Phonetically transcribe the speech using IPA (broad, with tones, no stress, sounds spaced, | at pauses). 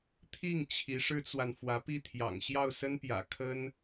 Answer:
t̪ʰ i˥˩ ŋ t͡ɕʰ i˧˥ ʂ ɻ̩˥ t͡s w a˨ n f w ä˧˥ p i˥˩ t̪ʰ j ɑ̰˨˩ ŋ ɕ j ɑ˥˩ ʊ̯ s ə˥ n p j ä̰˨˩ kʰ ə˥ n